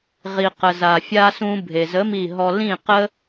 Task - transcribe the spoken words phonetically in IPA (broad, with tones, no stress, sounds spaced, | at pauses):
ʁ i˩ q ə˩ z a˩ fʲ a˧ s ũ˧ bʱ e˩ z ə˨˥ m i˧˩ ɦ ɔ˧ l ĩ˧˩ q ə˧